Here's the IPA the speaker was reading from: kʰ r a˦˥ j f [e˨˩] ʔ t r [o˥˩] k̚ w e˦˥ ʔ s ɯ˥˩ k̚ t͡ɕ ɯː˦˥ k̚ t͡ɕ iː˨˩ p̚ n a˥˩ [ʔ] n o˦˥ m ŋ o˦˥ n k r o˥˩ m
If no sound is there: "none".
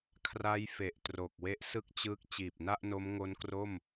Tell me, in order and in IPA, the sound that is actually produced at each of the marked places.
e˨˩, o˨˩, ʔ

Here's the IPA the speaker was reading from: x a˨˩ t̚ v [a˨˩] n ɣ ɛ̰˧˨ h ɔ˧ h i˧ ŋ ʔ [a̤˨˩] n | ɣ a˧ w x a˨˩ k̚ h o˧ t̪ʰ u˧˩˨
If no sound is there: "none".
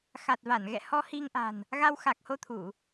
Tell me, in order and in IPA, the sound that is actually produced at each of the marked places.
a˧˩, a̤˨˩

